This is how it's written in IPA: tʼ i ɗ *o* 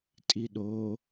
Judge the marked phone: correct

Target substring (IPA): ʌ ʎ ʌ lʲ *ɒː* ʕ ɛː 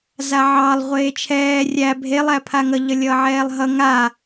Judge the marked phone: incorrect: ʌː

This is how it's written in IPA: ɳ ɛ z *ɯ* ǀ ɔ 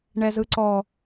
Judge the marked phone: correct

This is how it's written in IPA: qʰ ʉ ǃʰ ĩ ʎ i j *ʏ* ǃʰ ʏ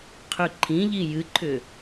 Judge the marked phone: incorrect: ɨ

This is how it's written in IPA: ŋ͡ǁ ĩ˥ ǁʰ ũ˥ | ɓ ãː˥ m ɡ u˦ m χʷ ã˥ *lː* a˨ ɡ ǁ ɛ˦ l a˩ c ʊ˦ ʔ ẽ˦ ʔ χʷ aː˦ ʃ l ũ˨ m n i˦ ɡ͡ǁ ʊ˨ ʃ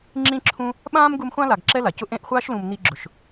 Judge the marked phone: incorrect: l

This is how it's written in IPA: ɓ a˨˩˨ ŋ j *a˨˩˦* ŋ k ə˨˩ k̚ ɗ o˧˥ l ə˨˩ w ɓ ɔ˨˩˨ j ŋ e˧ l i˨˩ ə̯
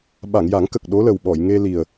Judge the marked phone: correct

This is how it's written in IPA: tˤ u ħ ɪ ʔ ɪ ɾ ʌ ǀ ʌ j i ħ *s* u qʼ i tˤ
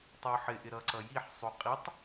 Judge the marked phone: incorrect: sˤ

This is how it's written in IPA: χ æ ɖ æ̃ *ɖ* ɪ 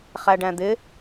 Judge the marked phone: incorrect: d̪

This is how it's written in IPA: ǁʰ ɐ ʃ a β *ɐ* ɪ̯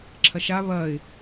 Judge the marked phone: correct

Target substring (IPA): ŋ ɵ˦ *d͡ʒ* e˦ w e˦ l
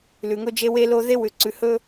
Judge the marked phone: correct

